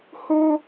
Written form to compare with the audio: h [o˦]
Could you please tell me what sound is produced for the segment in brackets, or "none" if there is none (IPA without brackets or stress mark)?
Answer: o˦